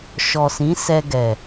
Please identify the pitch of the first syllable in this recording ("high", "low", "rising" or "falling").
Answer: low